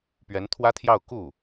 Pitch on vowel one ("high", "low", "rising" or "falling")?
rising